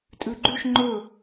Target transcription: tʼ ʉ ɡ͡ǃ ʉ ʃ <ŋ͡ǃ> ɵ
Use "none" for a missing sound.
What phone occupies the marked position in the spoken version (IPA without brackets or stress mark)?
ŋ͡ǃ